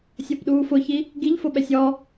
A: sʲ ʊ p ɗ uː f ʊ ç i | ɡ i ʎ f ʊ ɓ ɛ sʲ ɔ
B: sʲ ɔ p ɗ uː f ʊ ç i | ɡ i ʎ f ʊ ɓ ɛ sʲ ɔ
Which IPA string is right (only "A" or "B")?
B